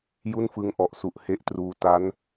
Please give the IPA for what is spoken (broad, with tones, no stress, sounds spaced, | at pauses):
j u˥˩ n f ɯ˦˥ ŋ ʔ ɔ˨˩ ʔ s u˨˩ ʔ h e˦˥ ʔ t r uː˧ t a˦˥ n